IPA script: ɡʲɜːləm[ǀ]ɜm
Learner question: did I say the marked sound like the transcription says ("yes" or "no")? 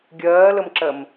no